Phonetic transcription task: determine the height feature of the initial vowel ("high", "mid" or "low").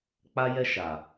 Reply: low